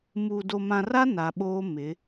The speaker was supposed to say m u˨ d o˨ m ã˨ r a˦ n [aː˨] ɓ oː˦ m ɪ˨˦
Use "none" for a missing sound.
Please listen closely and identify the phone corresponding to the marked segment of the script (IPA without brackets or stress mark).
a˨